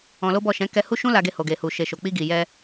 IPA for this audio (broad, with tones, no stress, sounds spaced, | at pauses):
ɔ̃˧ l o˦ b ɔ˦˨ ʃ ɛ̃˨˦ k ɛ˧ h u˦ ʃ ũ˦ l a˧ ɡ e˧ h o˨ ɡ e˨ h u˨ ʃ e˨ ʃ o˨ k͡p i˧ ɡ i˨ j ɛ˧